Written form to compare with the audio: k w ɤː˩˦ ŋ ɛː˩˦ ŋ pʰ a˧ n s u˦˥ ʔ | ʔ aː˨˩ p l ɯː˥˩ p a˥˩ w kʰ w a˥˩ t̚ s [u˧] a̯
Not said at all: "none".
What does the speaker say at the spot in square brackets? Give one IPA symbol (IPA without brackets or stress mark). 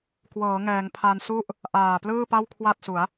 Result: u˩˦